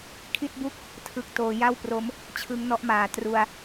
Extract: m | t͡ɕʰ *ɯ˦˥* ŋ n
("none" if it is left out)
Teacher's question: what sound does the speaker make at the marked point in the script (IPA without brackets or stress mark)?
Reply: ɯ˦˥